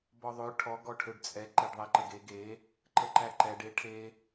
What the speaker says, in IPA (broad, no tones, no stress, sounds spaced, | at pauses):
b ɔ ðˤ ø ʈʰ ɔ ɡ ɔ ʈʰ ø ɖ t͡sʼ ɛ ǃ e ɖ ðˤ ɛ ǃ ə ɡ e ɡ e | ǃ ə ǃ æ ǃ ɛ ɖ e ʈʰ e